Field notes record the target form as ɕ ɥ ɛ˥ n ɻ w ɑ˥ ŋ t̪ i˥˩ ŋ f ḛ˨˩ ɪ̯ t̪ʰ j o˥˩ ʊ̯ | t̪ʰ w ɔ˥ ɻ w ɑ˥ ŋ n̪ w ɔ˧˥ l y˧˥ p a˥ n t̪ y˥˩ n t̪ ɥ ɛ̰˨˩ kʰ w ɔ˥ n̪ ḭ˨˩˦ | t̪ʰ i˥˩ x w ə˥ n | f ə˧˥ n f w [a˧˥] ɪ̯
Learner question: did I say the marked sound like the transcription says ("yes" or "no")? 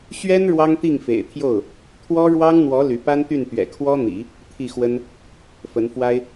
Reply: no